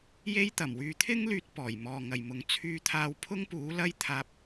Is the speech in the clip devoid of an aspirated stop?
no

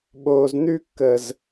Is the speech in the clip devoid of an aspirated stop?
yes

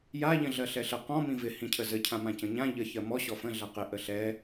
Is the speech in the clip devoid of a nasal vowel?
no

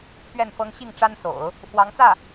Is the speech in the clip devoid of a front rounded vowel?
yes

